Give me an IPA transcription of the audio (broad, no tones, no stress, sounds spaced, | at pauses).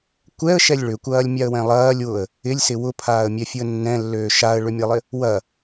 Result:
kʷ ɛ ə̯ ʃ ɛ lʲ ɭ ʏ kʷ ɐː lʲ mʲ a ə̯ w ɛ̃ lˠ ɐː lʲ w ʊ ə̯ | ɪ lʲ s ɪ w ʊ pʰ aː ə̯ mʲ ɛ fʲ u ə̯ nː ɛ̃ lː øː ʃ a ə̯ ɭ ʏ mʲ ɐ lˠ ɪ | w ɐ